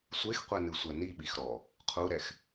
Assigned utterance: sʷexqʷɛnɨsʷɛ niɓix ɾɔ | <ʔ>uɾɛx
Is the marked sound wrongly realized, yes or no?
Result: yes